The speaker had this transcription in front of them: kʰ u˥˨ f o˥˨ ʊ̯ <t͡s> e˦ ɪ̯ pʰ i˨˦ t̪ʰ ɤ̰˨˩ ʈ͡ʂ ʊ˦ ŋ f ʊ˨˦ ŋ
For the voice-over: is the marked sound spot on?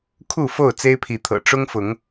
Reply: yes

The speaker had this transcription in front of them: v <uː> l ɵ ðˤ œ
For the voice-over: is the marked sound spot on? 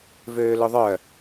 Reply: no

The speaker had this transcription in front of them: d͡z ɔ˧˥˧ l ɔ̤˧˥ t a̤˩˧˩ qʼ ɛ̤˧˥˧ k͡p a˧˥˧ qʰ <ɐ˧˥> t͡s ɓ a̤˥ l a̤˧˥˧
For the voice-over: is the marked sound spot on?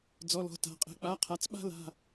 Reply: no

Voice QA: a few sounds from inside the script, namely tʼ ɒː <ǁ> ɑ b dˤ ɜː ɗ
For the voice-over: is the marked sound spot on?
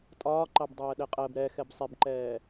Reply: no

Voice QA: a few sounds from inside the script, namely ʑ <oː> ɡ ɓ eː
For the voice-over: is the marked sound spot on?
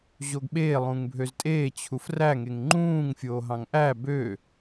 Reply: no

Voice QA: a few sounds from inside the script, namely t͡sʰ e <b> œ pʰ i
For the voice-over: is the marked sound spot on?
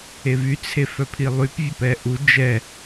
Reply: no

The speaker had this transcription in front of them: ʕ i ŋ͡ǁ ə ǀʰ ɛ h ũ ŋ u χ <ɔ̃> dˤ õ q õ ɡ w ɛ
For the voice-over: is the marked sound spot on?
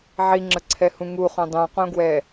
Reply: no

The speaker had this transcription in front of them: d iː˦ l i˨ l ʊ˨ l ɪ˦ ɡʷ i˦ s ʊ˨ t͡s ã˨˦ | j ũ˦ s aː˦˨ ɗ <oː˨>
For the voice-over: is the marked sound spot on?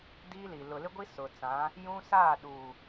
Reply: no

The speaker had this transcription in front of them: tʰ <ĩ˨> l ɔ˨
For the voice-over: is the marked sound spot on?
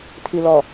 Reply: no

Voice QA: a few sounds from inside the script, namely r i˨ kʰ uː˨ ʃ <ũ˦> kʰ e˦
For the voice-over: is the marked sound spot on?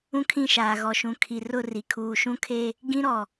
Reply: yes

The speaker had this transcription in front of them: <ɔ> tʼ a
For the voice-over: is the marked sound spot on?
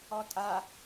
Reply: yes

